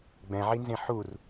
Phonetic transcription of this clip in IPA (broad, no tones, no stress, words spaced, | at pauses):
ɡ͡bɛ̃ʕinzẽ ħur